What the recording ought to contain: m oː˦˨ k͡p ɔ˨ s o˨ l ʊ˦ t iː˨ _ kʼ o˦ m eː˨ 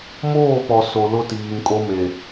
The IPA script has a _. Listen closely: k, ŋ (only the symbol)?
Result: ŋ